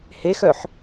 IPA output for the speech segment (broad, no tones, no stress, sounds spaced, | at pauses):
h e x œ ħ